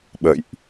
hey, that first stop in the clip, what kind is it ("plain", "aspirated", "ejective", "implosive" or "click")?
implosive